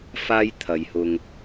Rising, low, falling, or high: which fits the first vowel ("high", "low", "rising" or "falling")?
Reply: high